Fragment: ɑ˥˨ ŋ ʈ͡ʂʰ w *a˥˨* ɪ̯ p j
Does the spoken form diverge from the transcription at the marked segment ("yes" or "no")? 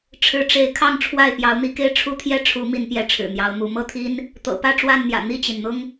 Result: no